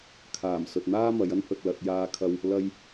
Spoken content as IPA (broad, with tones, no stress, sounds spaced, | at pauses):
kʰ aː˨˩ m s ɵ˨ t̚ n̪ aː˥ m ɐ˨˧ j ɐ˥ n h ɵ˨ t̚ l ɐ˧ t̚ j aː˧ kʰ ɐ˧ w | l ɐ˥ j